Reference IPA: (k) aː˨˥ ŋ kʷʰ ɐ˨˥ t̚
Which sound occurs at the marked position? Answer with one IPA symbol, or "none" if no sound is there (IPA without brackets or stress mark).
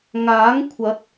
ŋ